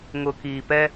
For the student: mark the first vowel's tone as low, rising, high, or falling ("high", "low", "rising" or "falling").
low